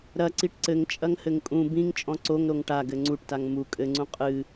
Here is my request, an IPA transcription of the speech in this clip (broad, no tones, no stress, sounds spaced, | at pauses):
ɾ ɐ ǀ i ʈ ǀ ɘ ŋ t͡ʃʼ ɐ ŋ h ɘ ŋ kʼ ũ b ĩ ŋ t͡ʃʼ ɔ̃ ǀ o ŋ ɾ o ŋ ʈ a ɡ ɘ ŋ͡ǀ u ʈ t a ŋ m u kʼ ɘ ŋ͡ǀ ũ qʼ ɨ